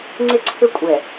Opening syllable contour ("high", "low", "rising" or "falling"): high